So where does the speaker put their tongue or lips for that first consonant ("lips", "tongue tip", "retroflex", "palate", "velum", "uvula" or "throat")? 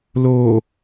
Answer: tongue tip